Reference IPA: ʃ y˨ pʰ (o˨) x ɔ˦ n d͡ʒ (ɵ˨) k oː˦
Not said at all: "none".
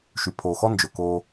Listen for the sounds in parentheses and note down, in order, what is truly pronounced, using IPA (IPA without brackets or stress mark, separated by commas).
oː˨, ɵ˨